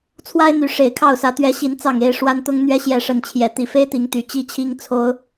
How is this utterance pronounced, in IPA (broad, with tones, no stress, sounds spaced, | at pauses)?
t͡sʰ w a˦ ɪ̯ n̪ y˨˦ ʂ e˨˩ ɪ̯ kʰ ɑ˥˨ ʊ̯ s ä˨˦ t̪ ɥ ɛ˨˦ ɕ i˨˦ n t͡s ɑ˨˩ ŋ e˥˨ ɪ̯ ʂ w a˦ n t̪ ʊ˦ ŋ n̪ ɥ ɛ˦ ɕ j ɛ˥˨ ʂ ə˥˨ n t͡ɕʰ j ɛ˨˦ t̪ i˨˩ f e˦ ɪ̯ t̪ i˨˦ ŋ t̪ y˨˩ t͡ɕ i˥˨ t͡ɕʰ i˦ ŋ t͡sʰ o˨˦ ʊ̯